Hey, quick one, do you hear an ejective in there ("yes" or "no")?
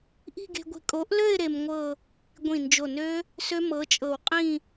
yes